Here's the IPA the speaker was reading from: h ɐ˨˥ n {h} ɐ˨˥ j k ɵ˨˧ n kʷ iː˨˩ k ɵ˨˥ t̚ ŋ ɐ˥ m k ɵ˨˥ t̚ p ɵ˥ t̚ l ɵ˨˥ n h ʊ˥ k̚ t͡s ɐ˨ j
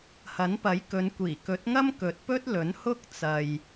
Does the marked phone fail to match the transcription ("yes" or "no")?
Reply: yes